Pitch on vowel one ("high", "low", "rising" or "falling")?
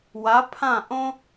rising